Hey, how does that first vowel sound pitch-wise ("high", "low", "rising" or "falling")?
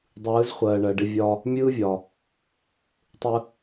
rising